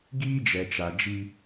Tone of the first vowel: high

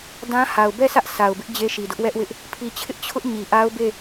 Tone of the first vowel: high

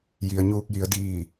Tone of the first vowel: low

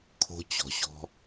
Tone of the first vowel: high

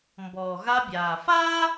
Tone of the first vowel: low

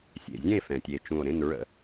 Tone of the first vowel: low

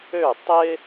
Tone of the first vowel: falling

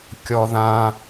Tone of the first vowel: high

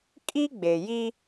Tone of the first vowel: high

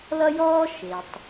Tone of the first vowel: high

